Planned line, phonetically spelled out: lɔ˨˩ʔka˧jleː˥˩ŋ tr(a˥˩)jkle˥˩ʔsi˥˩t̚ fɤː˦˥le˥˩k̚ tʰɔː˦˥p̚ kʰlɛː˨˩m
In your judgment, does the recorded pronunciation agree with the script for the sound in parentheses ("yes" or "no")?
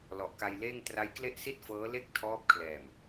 no